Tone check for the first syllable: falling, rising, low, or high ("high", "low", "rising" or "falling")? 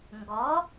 rising